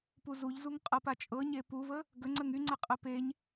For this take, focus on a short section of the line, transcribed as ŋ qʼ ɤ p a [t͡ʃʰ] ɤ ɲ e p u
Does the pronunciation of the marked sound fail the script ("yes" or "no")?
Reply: yes